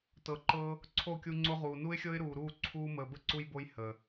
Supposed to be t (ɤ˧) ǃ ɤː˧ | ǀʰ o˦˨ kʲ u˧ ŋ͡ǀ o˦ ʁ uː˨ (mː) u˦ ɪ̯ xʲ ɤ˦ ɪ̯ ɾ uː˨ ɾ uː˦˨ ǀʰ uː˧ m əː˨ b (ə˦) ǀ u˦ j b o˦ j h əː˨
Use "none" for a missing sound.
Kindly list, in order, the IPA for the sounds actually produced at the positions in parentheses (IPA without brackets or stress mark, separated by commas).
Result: ɤ˨, n, ə˦